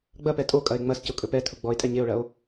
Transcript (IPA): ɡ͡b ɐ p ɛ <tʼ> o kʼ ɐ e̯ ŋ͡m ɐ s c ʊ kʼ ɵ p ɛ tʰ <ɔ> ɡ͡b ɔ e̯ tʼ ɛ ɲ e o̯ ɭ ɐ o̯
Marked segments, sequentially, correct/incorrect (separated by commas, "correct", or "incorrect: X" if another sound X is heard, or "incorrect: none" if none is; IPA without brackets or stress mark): correct, incorrect: ʊ